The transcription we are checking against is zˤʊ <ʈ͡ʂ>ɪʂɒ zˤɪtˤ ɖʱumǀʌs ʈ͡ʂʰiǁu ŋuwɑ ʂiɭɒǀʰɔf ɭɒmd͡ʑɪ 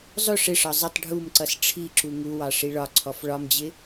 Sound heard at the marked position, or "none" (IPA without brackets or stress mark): ʂ